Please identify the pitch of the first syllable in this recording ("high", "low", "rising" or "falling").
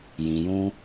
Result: low